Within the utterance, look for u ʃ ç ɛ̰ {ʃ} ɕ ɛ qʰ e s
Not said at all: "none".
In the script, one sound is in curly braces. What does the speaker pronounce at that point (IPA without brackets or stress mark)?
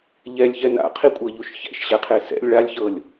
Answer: ʃ